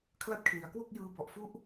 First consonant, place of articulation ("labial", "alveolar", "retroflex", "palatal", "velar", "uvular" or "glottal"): velar